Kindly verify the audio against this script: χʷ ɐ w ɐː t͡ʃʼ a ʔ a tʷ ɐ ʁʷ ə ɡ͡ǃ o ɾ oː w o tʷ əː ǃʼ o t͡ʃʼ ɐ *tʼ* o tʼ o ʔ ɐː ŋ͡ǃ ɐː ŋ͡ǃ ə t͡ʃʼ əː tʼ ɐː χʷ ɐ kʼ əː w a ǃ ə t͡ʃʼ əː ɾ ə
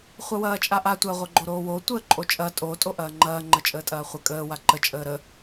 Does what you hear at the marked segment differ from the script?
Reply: no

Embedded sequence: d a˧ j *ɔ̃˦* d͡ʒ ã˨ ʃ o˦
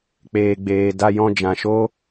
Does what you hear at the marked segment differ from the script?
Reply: yes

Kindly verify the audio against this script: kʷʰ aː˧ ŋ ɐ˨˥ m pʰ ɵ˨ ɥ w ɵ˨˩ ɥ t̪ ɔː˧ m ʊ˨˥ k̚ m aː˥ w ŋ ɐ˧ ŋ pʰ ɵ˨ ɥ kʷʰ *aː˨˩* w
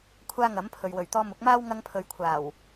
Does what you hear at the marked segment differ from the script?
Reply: no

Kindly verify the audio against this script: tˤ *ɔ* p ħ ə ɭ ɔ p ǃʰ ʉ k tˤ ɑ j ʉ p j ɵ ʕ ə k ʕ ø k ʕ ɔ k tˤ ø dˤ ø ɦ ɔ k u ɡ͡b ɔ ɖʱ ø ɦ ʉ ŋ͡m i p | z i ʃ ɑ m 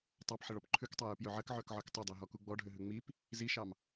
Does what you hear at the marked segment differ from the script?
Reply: yes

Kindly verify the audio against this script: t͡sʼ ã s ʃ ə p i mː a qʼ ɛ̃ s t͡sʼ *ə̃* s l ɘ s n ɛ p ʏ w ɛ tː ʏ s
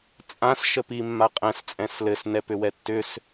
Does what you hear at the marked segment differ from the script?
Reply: yes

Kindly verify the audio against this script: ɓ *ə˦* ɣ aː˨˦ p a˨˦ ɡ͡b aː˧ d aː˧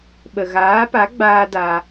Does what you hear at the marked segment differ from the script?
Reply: yes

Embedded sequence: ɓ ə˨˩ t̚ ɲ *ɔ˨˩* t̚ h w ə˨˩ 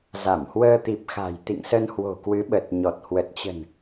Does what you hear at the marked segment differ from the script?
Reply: no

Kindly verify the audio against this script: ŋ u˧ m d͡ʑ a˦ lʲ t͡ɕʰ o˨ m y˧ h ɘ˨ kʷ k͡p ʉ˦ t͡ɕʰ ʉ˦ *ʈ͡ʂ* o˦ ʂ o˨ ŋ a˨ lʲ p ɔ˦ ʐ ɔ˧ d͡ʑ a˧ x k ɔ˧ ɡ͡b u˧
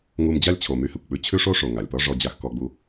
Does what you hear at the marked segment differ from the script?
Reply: yes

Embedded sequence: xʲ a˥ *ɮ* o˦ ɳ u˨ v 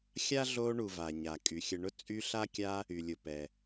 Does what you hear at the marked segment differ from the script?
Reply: no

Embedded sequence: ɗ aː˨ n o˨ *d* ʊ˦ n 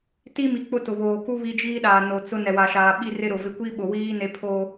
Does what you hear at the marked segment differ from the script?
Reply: yes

